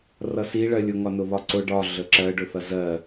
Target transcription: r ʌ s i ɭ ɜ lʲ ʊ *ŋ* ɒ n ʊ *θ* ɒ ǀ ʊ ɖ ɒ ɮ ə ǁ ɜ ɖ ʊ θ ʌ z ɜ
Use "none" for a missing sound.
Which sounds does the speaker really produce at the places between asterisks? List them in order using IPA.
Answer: ŋ, β

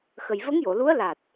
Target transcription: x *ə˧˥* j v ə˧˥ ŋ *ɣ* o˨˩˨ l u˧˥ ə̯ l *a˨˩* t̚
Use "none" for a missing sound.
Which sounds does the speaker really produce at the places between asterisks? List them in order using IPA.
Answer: ə˨˩, j, a˨˩

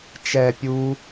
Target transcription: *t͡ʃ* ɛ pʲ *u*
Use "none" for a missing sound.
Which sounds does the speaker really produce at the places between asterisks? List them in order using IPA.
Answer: t͡ʃ, u

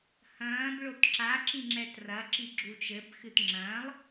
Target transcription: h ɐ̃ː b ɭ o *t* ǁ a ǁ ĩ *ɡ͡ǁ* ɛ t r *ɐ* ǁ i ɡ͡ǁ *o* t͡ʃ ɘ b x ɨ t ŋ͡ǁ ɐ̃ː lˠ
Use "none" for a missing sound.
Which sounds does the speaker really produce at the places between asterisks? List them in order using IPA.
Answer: t, ŋ͡ǁ, ɐ, u

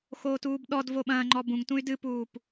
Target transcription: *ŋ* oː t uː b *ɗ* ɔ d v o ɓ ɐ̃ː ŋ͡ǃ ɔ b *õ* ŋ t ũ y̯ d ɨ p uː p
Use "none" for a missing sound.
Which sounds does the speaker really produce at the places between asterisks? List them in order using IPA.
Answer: x, ɗ, ũ

